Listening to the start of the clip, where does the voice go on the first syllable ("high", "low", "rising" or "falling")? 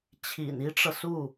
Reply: low